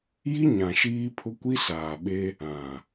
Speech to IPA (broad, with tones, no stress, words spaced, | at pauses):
ji˦ɲã˨ ʃiː˦pʰʊ˦ kʷi˦saː˨ɓe˦ | ã˨